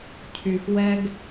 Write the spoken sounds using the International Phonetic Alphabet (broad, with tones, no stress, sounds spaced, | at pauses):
cʰ y˨ x w ɛ˦ ɡ